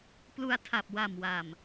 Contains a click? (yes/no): no